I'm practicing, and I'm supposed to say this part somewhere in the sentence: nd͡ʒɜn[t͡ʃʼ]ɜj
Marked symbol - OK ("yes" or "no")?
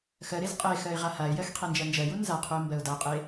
no